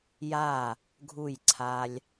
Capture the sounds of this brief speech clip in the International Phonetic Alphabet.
j a˧˩ | ɡʱ u˧˩ j ǀʰ a˧ lʲ

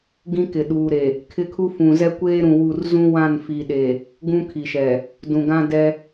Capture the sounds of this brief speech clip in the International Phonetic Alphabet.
ɡ ĩ˦ k ɪ˨ ɗ uː˨ ɾ e˨ | kʰ ɪ˦ kʰ u˦ f ũ˨ z ɛ˦ kʷ eː˦ ɾ ũ˨ w u˦˨ r z ũ˦ w ã˦˨ n f i˨ ɗ e˨ | ɡ ũ˦ kʰ i˨ ʃ ɛ˨ | d ũ˨ ɡ ã˦ d ɛ˦

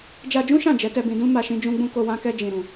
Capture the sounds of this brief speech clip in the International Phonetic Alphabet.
d͡ʒ a˧ d͡ʒ ũ˦ ʃ ã˦˨ d͡ʒ ɛ˨˦ t ɛ˧ b ĩ˧ d ũ˦ m a˧ ʃ ĩ˦ d͡ʒ ũ˦ ɡ͡b ũ˦ k o˧ w ã˦ k ɛ˦ d͡ʒ ĩ˧ ɾ ũ˧

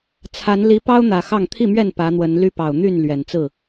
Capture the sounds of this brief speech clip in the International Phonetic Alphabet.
t͡sʰ a˨˦ n l i˨˦ p ɑ˦ ʊ̯ n̪ ä˨˩ x ɑ˥˨ ŋ t̪ʰ i˥˨ m ɥ ɛ˥˨ n p ä˨˦ n̪ w ə˨˦ n l y˦ p ɑ˨˩ ʊ̯ n̪ y˥˨ n l ɥ ɛ˨˩ n t͡s ɹ̩˥˨

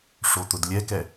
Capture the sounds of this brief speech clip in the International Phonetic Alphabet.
ʂ o t̪ ʊ d lʲ ɛ k ɛ

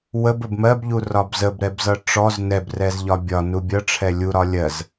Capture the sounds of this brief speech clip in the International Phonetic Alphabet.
w ə b ə b m ɜ b ʎ u r ɒ b z ə b ɾ ɛ b z ʌ ʈ͡ʂ ɔ z n ɛ b r ɛ z ʎ ɒ bʲ ɒ n u bʲ ʌ ʈ͡ʂʰ ɛ lʲ u ɾ ɒ lʲ ɜ z

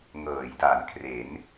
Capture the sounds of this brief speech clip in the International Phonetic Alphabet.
ŋ ɤː˩˦ j d a˩˦ n kʰ r e˩˦ n

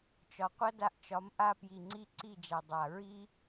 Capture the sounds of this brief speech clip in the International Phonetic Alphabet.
t͡ʃ ɒ˨ qʷ ʌ˦ d a˧ ʔ t͡ʃ ɒ˨˦ m ʔ a˧ p j i˨ ŋ͡ǀ i˧ ǀ i˦˨ d͡ʒ æ˨ dˤ a˨ ɹ i˦

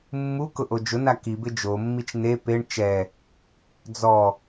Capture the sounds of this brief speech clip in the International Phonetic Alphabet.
mː u k ʊ ʔ o d͡ʒ ʊ n a k i b ɪ d͡ʒ o mː i t͡ʃ n e p e ɳ t͡ʃ ɛ | d͡z ɔ

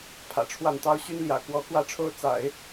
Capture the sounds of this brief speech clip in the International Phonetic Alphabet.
pʰ ä̰˨˩ ʈ͡ʂʰ w a˥˩ n t̪ ɑ˥ ʊ̯ ɕ y˥ n l j ä̰˨˩ k w ɔ˧˥ k w ä˥ ʈ͡ʂʰ o˥ ʊ̯ t͡s a̰˨˩˦ ɪ̯

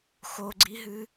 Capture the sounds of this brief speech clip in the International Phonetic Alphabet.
x o ɡ͡ǀ i ɦ ɨ

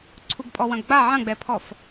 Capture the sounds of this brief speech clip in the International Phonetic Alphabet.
ǀʰ u ɡ pʼ ɔ w ɐ̃ ɡ ɡ͡b a ʕ ɐ̃ ɡ͡b ɛ pʰ ɔ f

